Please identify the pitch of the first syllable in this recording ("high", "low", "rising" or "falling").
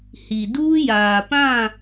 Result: low